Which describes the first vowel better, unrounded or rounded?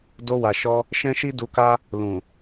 rounded